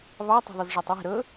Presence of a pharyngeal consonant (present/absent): absent